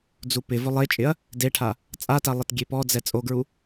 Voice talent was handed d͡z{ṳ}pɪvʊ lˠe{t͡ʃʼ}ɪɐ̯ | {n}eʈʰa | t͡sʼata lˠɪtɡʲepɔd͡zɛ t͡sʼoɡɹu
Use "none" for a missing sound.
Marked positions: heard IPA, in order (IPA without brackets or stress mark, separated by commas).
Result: u, t͡ʃʼ, d